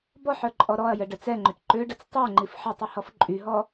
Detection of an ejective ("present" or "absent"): present